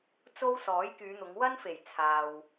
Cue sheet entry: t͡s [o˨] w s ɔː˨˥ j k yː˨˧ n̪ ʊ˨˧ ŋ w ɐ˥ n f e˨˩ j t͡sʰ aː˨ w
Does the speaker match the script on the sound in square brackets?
no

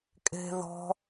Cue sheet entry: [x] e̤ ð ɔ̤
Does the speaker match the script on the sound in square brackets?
no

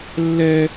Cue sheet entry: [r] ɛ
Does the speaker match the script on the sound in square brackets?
no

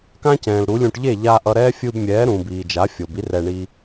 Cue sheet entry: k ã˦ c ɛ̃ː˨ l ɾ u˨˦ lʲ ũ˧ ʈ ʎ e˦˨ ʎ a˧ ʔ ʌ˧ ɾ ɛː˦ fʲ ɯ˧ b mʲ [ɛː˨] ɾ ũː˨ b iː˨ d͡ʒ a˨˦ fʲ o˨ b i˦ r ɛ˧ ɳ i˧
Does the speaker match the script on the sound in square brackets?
no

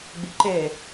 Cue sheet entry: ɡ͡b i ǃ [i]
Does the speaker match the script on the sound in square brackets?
no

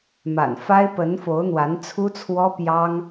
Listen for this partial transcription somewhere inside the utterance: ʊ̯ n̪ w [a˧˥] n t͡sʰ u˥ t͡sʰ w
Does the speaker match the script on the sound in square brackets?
yes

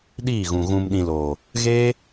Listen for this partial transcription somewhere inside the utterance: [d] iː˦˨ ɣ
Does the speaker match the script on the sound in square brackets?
no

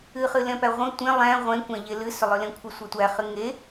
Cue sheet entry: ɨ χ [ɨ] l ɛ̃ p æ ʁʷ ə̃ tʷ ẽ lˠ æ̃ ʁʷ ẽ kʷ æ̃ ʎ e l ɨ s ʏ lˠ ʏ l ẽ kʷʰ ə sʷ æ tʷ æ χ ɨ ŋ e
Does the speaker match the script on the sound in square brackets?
yes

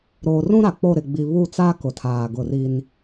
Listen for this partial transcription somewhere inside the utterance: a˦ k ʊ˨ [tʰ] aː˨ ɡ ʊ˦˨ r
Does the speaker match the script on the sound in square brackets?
yes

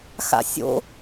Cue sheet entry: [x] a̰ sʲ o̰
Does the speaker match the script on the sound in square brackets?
yes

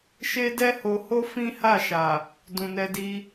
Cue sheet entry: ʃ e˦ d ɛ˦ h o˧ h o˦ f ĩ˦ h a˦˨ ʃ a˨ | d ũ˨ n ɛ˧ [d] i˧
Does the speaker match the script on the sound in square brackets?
yes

